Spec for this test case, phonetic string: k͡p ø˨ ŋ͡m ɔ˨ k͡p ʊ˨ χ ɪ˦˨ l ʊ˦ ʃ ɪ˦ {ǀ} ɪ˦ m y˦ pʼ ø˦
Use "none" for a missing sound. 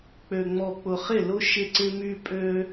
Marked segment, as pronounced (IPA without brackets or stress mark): ǀ